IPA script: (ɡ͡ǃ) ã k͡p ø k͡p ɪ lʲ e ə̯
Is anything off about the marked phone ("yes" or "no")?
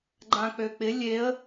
no